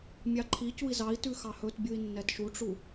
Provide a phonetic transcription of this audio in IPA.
mʲɑǃʰicui̯ zɑi̯tʉ xɑhɵtbʲui̯ nːɛtʃuʈ͡ʂu

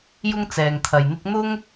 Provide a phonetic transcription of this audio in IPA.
jʊ˥ŋt͡sɛː˨ŋt̪ʰɐ˨jn̪ɪ˥k̚ n̪ʊ˥ŋ

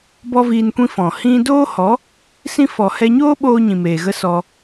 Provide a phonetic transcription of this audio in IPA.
bɔ˦viː˧nkʷĩ˦ fɔ̃˨hĩ˦ doː˦ hɔ˨˦ | sĩ˦ fɔ˨hɛ˧ɲoː˦ɓoː˧ ɲĩ˨meː˨ɣə˦ sɔ˧

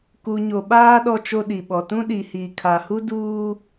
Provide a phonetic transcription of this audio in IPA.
ku˨ ɲo˨ɓaː˦ ɗɔ˦t͡ʃo˦ɗi˨ɓɔ˨ tũ˦ɗi˨hiː˨ kʰa˨ hu˦duː˦

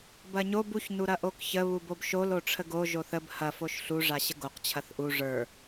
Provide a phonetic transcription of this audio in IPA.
bɐɲob uç nuɾɐʔokçə βubobʃol oʈ͡ʂʰəɡo ʒoθəb hɐ foʃɬu ʐaɕəɡoq t͡ɕʰɐθʔu ʐə˞

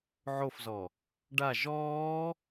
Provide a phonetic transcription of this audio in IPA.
ʕofzɔ | ɖa ʒɔː

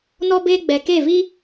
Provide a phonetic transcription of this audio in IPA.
nɔ˦ beː˦ɡ͡bɛ˨ke˦˨vi˦

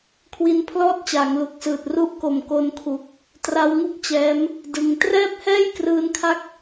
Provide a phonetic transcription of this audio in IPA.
kʰwi˦˥npʰlɔː˥˩t̚t͡ɕaː˩˦ŋ lu˨˩k̚sɯː˨˩t̚ru˥˩ʔko˨˩m ko˧nkʰu˨˩k̚ | tra˦˥wŋu˥˩k̚t͡ɕɛː˦˥m | dɯ˧ŋ trɛː˥˩p̚hɛː˥˩jkrɯː˧nkʰa˦˥k̚

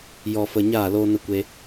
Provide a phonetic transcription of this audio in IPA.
jɔ˧fə˧ ɲaː˦˨loː˦nə˦kʷe˦

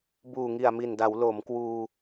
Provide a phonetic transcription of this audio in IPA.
buː˨˩ŋi˨˩a̯mi˨˩nda˩˦w lo˩˦mkwuː˧

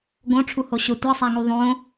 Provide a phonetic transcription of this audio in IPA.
ɡõʈ͡ʂʰuho ɕʊ tʷɛsˤaŋu ðˤõ

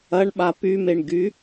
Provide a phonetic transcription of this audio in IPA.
ɐɳɓa pymeɳɡy

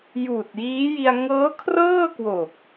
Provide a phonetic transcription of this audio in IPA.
juː˨˩t̚jiː˦˥ji˧a̯ ŋɤː˦˥kʰrɤː˥˩kwo˨˩k̚

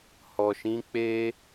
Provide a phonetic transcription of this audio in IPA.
hɔ˨ʃĩ˨˦ k͡pe˦

